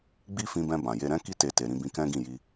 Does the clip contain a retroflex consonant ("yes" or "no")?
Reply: no